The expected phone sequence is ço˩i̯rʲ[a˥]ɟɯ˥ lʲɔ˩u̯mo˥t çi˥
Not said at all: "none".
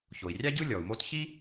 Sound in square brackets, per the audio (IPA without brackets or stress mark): a˥